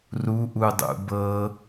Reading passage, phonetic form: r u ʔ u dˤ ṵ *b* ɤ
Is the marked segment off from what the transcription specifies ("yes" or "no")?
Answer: no